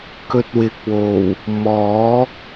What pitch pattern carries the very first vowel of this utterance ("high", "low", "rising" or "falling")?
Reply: low